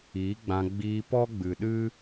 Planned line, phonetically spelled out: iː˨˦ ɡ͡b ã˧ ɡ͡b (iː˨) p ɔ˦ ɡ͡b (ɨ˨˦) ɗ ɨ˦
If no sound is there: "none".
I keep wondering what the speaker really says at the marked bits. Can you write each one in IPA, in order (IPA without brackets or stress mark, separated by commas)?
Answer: iː˧, ɨ˨